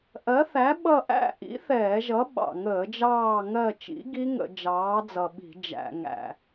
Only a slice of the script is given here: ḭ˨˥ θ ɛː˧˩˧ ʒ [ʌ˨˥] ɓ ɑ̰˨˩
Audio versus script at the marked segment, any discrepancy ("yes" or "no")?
no